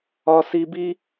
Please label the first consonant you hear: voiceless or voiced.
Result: voiceless